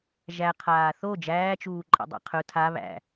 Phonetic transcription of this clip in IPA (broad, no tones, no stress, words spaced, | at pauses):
ʒæ qʰaːθo d͡ʒæːt͡ʃuːǃʼḛdˤæ̰ qʰɵ tʰa βæ̰